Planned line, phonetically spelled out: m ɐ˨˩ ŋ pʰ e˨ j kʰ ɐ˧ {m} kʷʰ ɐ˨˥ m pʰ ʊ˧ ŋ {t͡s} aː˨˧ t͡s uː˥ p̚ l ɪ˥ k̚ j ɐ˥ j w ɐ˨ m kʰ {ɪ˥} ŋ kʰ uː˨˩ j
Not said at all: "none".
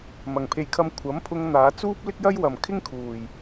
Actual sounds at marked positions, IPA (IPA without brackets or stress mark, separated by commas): m, n̪, ɪ˥